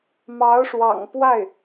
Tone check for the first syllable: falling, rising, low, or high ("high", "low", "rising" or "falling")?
rising